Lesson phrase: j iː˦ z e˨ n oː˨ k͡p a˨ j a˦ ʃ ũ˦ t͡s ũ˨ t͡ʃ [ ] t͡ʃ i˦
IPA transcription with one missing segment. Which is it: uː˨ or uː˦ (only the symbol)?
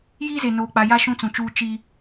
uː˦